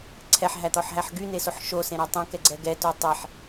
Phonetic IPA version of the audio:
ǀʰ ɛ ħ ɦ æ t̪ ɔ ħ ɦ æ ħ ɡ y n e s o ħ ʃ o s ẽ ɾ æ tˤ ẽ k ɛ ɡ͡ǀ ɛ ɡ ɛ t o tˤ e ħ

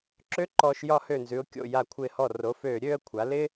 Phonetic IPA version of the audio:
ǁ ø˥ ǃ ɔː˧ ʃ j ɒ˧ h ø˧˩ n z ʉ˩˧ ʊ̯ kʲ o̰˧˩ j a˧˩ kʷʰ ɪː˧˩ h ɔ˧˩ r o˩˧ f øː˧˩ ɾʲ øː˥˧ ə̯ kʷʰ a˩˧ l ɪ˥

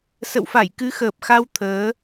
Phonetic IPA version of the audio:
s ə̰˧˨ w f a˧˩ j k ɨ˨˦ x əː˨˩ p̚ x a˧ w t̪ʰ əː˨˦

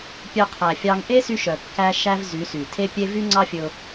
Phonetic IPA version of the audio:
pʲ œ˧ qʰ æ˨ fʲ ɑ˧ ŋ ʔ e˦ s y˦ ʃ œ˨ kː æ˦ ʃ æ˦ v z y˨˦ s y˨ tʰ e˦ pʲ e˦ v y˦ ŋ͡ǀ ɑ˦ fʲ ɵ˧ ʊ̯

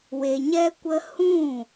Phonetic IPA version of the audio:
w e˧ ɲ ɛ˦ kʷ ə˦ h ũ˦˨

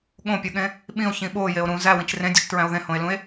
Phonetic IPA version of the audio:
ɠ õ pʲ o ɠ ẽ | ɓ ĩ o̯ ç ĩ ɓ o j e o̯ ɾ ũ z æ w ĩ t͡ʃ r ẽ dʲ u t͡ʃ t ɹ æ̃ o̯ ð ẽ h õ e̯ l ũ e̯

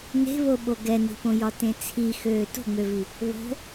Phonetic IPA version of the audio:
n e̤ β o ɓ o ɡ ɛ n i̤ p õ j ɒ t ẽ t͡sʰ i x øː t o̤ ŋ͡m ø v i | β o̤

